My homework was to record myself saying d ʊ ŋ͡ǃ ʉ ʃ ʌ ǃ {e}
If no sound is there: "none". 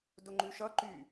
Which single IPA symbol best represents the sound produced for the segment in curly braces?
y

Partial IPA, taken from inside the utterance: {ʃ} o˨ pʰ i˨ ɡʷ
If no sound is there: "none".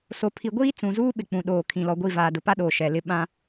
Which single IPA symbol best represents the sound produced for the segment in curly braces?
s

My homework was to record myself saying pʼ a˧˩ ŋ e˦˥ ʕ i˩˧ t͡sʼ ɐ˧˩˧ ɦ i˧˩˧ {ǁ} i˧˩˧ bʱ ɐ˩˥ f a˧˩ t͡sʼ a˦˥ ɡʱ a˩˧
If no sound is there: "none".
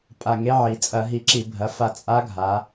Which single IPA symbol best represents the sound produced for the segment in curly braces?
ǁ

